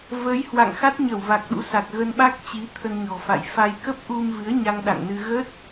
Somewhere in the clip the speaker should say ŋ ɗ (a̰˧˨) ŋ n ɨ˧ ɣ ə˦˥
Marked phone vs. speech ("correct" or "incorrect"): correct